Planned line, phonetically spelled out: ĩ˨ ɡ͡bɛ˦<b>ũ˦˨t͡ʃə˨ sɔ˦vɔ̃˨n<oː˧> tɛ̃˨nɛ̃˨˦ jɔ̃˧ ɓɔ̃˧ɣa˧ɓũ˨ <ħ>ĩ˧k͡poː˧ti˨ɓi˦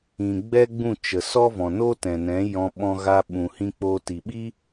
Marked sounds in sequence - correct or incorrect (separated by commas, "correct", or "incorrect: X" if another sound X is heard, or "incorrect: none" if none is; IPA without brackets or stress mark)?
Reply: incorrect: ɡ͡b, incorrect: oː˦, incorrect: h